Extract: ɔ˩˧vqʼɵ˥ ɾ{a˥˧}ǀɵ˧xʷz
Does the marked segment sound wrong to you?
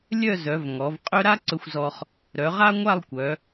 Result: yes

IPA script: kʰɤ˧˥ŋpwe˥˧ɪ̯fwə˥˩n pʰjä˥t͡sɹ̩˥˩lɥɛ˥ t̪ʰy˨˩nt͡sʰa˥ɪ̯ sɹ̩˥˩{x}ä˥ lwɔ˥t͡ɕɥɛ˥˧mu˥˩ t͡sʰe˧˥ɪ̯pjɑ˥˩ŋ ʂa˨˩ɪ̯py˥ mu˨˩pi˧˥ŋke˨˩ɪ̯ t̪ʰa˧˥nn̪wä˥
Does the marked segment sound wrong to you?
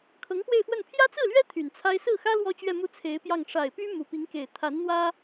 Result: no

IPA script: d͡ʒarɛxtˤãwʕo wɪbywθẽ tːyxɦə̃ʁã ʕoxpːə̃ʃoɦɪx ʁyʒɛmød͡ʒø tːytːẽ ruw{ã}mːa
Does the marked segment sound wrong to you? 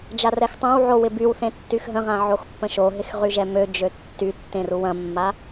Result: yes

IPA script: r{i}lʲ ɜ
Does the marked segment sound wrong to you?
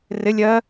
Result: yes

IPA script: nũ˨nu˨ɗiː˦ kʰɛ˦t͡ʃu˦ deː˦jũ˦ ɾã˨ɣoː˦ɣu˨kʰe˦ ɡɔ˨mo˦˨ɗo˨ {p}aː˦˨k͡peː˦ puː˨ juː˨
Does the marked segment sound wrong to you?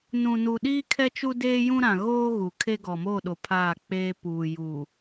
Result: yes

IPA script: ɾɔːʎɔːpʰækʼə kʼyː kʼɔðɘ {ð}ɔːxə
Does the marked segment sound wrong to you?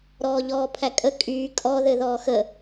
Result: no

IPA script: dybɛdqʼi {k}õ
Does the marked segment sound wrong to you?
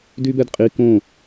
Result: no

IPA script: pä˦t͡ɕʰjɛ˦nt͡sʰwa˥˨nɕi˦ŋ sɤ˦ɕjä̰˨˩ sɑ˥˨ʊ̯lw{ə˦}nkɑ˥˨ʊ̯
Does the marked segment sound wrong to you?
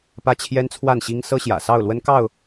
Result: no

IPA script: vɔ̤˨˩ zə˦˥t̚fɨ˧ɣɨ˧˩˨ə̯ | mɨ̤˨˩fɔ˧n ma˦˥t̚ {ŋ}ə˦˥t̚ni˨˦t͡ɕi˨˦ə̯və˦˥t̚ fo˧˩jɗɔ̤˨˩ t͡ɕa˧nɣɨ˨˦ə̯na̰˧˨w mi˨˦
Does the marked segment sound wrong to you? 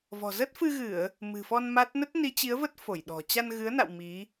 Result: yes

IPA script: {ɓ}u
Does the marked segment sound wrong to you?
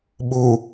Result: no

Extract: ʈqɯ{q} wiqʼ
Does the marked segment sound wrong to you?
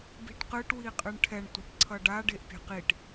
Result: yes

